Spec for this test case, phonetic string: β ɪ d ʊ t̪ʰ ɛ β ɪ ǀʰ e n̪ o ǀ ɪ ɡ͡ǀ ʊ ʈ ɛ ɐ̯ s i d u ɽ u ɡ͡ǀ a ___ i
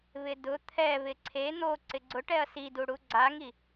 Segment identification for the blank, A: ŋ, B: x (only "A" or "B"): A